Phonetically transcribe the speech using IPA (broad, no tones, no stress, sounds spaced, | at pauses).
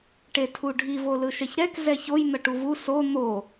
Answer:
ʈ e tʰ u ɖʱ i v o l ɯ ʃ ɛ ç ɾ ɛ k z ɛ ç o j n̪ ʌ ʈ u v u s o n̪ o